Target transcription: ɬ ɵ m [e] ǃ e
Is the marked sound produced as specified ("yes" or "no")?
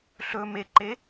yes